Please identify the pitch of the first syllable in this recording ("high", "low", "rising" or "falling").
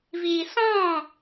low